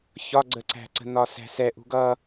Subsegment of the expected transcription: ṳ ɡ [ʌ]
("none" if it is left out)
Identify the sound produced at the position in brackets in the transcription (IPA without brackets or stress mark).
ʌ